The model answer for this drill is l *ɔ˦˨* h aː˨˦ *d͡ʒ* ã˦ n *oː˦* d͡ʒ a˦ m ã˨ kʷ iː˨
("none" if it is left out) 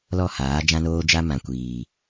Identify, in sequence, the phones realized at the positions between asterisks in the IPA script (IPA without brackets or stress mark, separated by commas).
ɔ˦˨, d͡ʒ, oː˦